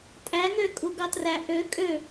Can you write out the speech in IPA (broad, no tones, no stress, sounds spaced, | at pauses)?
tʼ æ ŋ ø kʼ u ɡ ɑ t r æ ʔ ø kʼ ø